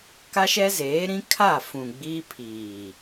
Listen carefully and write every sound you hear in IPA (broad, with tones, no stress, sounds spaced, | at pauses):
k a˦ ʃ ɛ˦ z eː˨˦ ɾ ĩ˦ kʰ a˦˨ f ũ˨ ɡ͡b i˦ pʰ iː˨